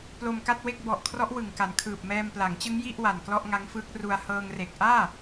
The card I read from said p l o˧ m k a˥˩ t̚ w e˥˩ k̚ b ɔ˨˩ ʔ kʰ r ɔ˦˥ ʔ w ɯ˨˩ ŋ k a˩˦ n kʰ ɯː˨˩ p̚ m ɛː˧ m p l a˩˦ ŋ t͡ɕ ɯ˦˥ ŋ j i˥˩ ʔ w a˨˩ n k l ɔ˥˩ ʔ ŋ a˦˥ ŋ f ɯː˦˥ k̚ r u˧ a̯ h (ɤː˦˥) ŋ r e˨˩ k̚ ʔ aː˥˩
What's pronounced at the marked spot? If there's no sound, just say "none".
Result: ɤː˧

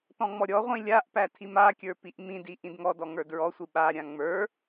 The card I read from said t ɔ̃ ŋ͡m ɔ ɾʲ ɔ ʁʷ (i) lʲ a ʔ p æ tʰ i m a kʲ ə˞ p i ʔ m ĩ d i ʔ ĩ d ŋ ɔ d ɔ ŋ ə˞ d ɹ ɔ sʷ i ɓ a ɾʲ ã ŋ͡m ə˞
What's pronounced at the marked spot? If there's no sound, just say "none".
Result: ĩ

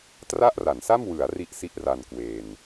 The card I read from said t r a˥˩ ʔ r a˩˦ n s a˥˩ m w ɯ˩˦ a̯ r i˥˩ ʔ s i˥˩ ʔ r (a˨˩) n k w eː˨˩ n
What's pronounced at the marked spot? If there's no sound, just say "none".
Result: a˧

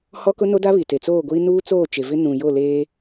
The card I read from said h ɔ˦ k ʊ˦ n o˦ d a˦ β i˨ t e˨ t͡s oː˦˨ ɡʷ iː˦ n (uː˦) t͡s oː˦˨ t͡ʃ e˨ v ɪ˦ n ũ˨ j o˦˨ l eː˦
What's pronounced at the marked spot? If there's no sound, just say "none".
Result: uː˦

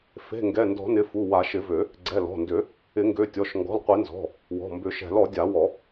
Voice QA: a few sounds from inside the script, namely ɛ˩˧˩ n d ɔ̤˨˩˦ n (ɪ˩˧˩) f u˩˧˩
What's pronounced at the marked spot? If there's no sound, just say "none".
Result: ɪ˩˧˩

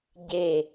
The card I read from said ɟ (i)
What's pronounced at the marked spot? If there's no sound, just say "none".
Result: e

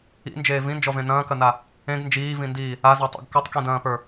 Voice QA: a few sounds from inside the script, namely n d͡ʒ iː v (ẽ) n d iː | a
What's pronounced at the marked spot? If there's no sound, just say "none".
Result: ĩ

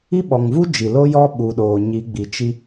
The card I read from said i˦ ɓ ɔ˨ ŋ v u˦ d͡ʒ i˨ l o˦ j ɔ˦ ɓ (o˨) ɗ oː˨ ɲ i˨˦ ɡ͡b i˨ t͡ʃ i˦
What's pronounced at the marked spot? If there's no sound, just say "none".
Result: u˨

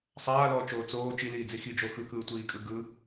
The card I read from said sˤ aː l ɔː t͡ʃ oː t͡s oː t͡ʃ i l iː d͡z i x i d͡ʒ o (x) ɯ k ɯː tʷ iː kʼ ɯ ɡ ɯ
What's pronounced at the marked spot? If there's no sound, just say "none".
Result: x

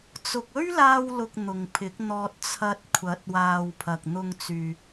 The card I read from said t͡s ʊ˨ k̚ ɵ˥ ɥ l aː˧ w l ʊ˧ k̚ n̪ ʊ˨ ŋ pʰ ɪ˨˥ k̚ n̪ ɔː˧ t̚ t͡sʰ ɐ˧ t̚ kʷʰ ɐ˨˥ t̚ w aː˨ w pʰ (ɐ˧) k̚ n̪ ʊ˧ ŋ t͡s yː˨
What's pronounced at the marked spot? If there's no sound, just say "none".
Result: ɐ˨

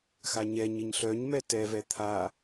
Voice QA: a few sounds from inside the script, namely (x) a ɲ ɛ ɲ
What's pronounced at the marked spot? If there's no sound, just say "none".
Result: x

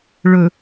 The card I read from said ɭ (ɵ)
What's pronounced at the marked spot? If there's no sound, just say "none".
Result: ɵ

